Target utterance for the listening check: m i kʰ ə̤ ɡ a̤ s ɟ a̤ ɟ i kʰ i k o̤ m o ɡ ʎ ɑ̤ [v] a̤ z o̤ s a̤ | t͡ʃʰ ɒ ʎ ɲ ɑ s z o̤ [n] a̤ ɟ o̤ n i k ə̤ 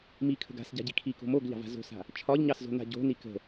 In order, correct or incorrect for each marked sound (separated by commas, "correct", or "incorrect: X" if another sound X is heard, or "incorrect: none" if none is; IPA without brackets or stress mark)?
correct, correct